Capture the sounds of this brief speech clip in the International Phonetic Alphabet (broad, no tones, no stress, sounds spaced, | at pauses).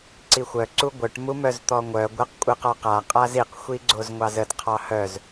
ǀ i xʷ œ ǀ u ɡʷ œ ʈ m u m œ z t̪ ɔ ŋʷ œ ɡʷ ə q kʷʼ ɨ q ɔ q a qʼ a z i q xʷ i ɡ͡ǀ o z ŋʷ ɑ z ə d qʰ ɑ h œ z